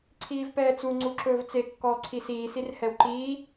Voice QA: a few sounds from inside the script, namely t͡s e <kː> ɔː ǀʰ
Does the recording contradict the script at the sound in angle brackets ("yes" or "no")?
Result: no